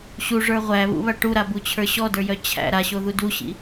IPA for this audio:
ɕ u ʐ ə˞ ʁʷ æ β ṵ β a ʈ u ɾ a b u t͡ɕʰ ə˞ ɕ ɔ d ə˞ j œ t͡ɕʰ æ̰ ɾ a ɕ o ð u d u ɕ ḭ

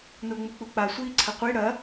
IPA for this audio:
n o ŋ͡m u k͡p u k͡p a sʷ iː ǀʰ ɐ qʷ i ɽ ɐ

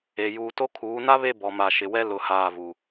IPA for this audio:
e˨ j uː˨ t o˦ kʰ uː˨˦ n a˦ β e˦˨ b ɔ˨ m a˨ ʃ ɪ˨ w ɛ˦ l ʊ˨ h aː˦˨ v u˨

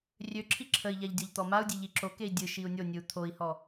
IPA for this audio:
rʲ ø ǁʰ i ǁʰ ə i̯ ʎ a ʎ dʲ ɔ ʎ t̪ ɔ m a u̯ dʲ e ʎ i ǁ o k e i̯ dʲ ɨ ʃ i u̯ nʲ o nʲ ɨ u̯ t̪ʰ o i̯ h ɔ

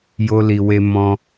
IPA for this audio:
j o˧ l i˨ w e˧ m ɔ̃˧

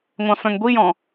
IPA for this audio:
ŋʷ ɑ̃ f œ̃ ŋ ɡʷ i j ɔ̃

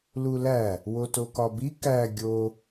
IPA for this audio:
l u l æ | w o t o k ɒ b i k æ ɡʲ o

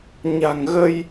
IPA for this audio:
ɲ a̤˨˩ ŋ ɣ ə˧ j

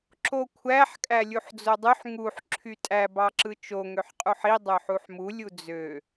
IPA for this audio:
ǁ o kʷʰ æ ħ kʼ æ lʲ u ħ d͡z o dˤ y ħ ŋ u ħ ǁʰ y tʼ æ b ɑ ǁ ɯ t͡ʃ o ŋ ø ħ qʼ u ħ i dˤ ø ħ u ħ m u lʲ u d͡z ø

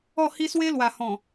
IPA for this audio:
ɔ˥˧ h i˦ s w e˦ l w a˨˩ h ɔ̃˨˩

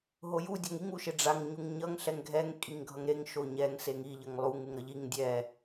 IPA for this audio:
ɦ o j u dʲ a ŋ i ŋ u ʃ e ɖ͡ʐ a ŋ ɲ u ŋ ɲ ʌ ŋ ɬ ɛ ŋ ɡʱ ɛ ŋ kʼ i ŋ ɡʱ ʌ ŋ ɾ e ŋ ʃ o ɲ ɛ ŋ s e ŋ i ʎ ʌ ŋ lˠ u ŋ u ŋ ɾ ʌ ʎ i ŋ dʲ ɛ

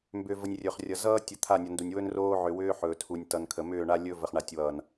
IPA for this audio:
m b ʏ˨ v ə˨ nʲ rʲ ɵ˨ χ rʲ ʌ˨ z ʌː˦ tʲ ə˨ t̪ʰ a˦˨ nʲ ʌ˨ n d u˨ nʲ w ɵ˦ n r oː˦ ʕ ʏ˨ w ʏː˦ ħ ɵː˨ tʰ u˨ nʲ t ʌ˨ n kʰ ə˨ m ʏː˦˨ ɳ a˦ lʲ ɵ˦ v ə˨ χ ɳ a˨ tʲ w ʌː˨ n

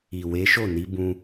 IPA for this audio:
i˨ w e˨˦ ʃ o˦˨ n i˨˦ b ũ˧

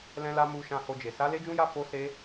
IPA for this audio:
l ɛ̃˦ l a˦ m u˧ ʃ ã˧ h o˧ d͡ʒ e˨ s a˨˦ l e˦ d͡ʒ ũ˦ j a˦ f o˦ s e˦

